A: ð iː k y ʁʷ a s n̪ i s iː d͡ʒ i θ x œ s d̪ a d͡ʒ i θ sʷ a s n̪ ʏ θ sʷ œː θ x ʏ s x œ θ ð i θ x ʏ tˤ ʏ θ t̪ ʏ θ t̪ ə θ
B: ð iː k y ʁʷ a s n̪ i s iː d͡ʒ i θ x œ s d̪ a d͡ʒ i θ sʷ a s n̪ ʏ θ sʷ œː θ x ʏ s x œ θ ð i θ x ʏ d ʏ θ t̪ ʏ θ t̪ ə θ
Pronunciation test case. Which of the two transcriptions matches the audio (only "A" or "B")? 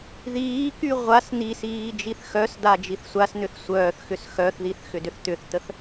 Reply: B